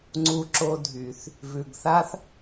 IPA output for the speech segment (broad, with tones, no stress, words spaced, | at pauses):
ŋ͡ǀu˧ǁo˧dʱy˨θ | vʉ˨ɡ θa˦θ